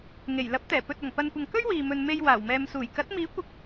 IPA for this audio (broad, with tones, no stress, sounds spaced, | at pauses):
ŋ e˨˩ j l ɐ˨˥ p̚ t̪ ɛː˨˩ p ɵ˧ t̚ ɐ˨˩ ŋ p ɐ˨ n kʷ ɐ˨ ŋ k ɵ˥ ɥ w iː˨ m ɵ˨ n m e˨ j w aː˨˩ w m ɛː˨ m s uː˨˩ j k ɐ˨˥ t̚ m iː˨˥ kʷ ɪ˨˥ k̚